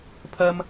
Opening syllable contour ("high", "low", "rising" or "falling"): high